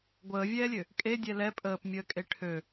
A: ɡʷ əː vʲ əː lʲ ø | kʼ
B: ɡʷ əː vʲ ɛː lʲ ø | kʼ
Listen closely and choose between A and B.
B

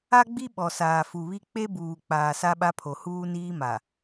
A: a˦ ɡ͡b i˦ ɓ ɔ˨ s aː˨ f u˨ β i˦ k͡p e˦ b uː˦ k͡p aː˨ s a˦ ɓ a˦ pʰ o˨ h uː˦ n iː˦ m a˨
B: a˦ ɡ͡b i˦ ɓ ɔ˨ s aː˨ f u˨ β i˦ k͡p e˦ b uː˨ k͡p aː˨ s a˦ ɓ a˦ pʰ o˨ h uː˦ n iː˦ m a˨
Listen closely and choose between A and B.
B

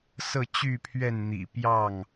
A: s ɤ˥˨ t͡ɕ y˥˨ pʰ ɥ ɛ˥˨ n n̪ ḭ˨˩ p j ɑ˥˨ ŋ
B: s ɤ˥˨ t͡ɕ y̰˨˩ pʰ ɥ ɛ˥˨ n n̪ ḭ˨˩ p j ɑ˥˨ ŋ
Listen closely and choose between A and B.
A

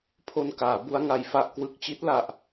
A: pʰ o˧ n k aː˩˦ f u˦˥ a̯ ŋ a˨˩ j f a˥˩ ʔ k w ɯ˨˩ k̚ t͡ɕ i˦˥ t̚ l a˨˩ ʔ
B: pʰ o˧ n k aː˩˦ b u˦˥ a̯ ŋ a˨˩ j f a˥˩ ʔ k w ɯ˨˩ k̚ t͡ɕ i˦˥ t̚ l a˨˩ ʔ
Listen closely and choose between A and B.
B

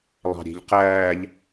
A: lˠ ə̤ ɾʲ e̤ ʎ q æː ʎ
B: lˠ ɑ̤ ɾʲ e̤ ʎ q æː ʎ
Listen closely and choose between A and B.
B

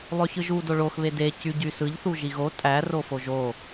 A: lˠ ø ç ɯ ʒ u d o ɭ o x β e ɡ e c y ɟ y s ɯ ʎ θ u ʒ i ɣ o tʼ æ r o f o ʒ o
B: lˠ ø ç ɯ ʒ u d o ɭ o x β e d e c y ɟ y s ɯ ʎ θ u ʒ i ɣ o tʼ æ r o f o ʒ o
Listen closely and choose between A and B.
B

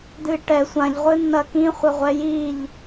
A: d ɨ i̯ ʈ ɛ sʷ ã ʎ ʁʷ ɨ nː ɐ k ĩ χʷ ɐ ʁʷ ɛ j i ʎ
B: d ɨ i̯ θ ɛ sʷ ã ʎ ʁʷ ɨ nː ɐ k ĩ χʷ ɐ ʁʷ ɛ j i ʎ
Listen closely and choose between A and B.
A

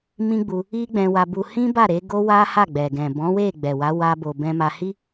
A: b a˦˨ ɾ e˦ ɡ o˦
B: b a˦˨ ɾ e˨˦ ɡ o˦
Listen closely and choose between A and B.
B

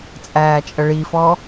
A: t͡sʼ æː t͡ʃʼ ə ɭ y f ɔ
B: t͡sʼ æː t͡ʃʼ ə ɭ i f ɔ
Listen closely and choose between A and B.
B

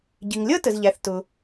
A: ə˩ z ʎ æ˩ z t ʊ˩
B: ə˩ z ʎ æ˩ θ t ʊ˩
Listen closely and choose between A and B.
B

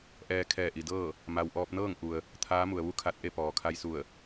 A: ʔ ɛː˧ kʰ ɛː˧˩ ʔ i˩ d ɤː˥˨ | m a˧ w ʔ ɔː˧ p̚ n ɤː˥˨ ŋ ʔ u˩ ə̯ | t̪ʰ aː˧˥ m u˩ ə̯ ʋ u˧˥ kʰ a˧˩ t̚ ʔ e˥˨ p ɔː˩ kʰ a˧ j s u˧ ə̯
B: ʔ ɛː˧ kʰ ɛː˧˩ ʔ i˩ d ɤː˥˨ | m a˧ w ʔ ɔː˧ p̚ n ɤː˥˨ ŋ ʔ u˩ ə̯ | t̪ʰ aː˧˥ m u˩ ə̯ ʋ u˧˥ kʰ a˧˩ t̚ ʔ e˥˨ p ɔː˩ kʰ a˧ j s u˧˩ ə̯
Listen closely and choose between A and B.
B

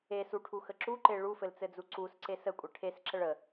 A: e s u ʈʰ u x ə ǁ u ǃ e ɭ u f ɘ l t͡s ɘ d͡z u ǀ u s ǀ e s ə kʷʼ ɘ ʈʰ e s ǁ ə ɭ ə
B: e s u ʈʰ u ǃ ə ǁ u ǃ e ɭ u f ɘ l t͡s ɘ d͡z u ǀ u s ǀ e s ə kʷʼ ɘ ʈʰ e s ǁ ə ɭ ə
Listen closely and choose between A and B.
A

